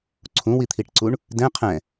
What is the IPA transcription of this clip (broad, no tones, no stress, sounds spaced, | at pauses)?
ǀʰ ũ w i t̪ʰ i ʈ ǀ u ɳ | d ɛ̃ qʰ ɛ̃